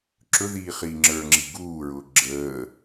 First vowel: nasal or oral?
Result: oral